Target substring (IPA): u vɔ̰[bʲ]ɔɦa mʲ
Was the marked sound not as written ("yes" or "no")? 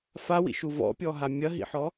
yes